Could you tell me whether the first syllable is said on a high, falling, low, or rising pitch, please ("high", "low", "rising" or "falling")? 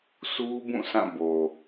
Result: high